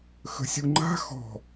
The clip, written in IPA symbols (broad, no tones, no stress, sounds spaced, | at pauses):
x ə̤ sʲ u ŋ͡ǃ a̤ x ɔ̤